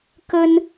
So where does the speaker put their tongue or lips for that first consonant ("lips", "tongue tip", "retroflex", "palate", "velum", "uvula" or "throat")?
velum